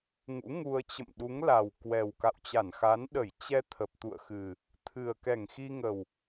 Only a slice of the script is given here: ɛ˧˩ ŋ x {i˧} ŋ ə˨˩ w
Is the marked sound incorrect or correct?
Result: correct